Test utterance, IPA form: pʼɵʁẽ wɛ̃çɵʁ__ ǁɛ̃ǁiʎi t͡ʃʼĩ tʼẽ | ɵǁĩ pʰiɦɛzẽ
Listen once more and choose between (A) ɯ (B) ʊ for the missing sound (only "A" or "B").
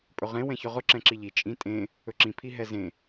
B